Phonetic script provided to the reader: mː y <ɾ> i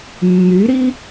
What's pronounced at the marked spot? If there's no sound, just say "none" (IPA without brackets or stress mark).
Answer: ɾ